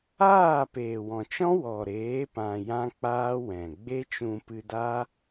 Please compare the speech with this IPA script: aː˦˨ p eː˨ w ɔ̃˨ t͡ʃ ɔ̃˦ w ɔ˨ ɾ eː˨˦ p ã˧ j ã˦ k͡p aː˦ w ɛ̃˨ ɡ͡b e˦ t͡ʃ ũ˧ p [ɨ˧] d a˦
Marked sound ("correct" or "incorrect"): correct